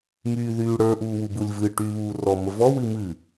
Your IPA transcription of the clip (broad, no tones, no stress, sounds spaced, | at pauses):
m yː ð yː ɽ ə˞ ʔ uː w u b u lʲ v ɨ ʈ yː β uː r ɔ m ə v ɔ w ɨ m ɨ